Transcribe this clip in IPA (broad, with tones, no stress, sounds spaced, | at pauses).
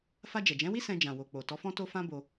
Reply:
f a˧ d͡ʒ ɛ˨ d͡ʒ ɛ̃˨˦ w i˦ s ɛ̃˧ d͡ʒ ã˨ w o˨ k͡p o˨ t ɔ˨˦ f ɔ̃˦ t o˦ f ã˦ b o˧